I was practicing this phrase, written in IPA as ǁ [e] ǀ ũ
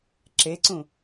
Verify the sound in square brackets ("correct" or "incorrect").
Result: correct